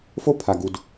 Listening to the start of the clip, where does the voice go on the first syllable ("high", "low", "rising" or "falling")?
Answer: high